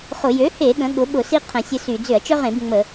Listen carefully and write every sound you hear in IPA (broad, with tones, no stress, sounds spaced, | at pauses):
χ ʊ˧˩˧ j ø˩˥ h e˧˩˧ ɠ ə̃˩˥ ɠ ʊ˩˥ ɓ ʊ˧˩˧ s i˦ qʰ ə̃˧˩˧ sʲ ə˦ s y˧˩˧ d͡z ʏ˧˩˧ ɐ̯ t͡ʃ œ˦ ʁ ẽ˧˩˧ b ŋ͡m ə˧˩˧